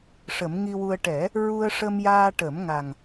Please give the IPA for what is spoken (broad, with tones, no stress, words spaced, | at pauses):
ʂə˨˩˦mŋi˧wu˧ə̯ ʈɛ˨˩˦ | ɹu˧ə̯ʂə˧mjaː˧ ʈə˨˩˦m ŋa˨˩ŋ